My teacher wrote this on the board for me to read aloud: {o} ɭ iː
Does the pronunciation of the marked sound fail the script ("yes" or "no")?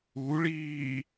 yes